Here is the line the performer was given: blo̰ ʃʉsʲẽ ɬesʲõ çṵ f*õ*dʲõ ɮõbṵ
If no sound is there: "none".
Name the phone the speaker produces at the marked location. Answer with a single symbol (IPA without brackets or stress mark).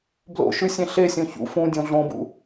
ũ